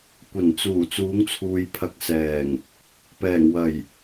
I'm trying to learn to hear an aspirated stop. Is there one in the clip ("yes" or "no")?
yes